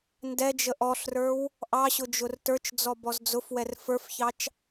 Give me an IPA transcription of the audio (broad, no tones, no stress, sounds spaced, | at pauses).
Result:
n d ɛ d͡ʒ ə ʔ ɔ ɬ r ə˞ w | ʔ ɑ ɕ ʊ d͡ʒ ʊ r t ə˞ t͡ʃ d͡z ɔ b ɔ z d͡z ʊ f w ɛ r f ə˞ f ç ɑ t͡ʃ